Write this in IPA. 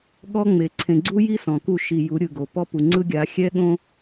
ɠ ɔ˦ ŋ͡m e˨ ǀʰ ẽ˨ ɡ͡ǀ u˦ j i˦ s ɔ̃˨ k u˦˨ ʃ i˨ j u˨˦ ɾʲ ɯ˨ ɡ o˨ p ɔ˦ p u˨ ŋ͡ǀ ɯ˦ ɡʲ a˨˦ xʲ ɛ˦ ɠ õ˦

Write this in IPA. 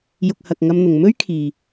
j ʊ˨ k̚ h ɐ˨ k̚ ŋ ɐ˧ m n̪ ʊ˨ ŋ m ɵ˥ ɥ kʰ iː˨

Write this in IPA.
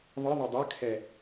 ðˤ ɯ ðˤ ɯ dˤ ə kʰ ɛ

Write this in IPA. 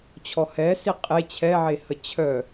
t͡ɕʰ ɔ h ɛ s i qʼ e t͡ɕʰ ɛ ʕ e h ə t͡ɕʰ œ

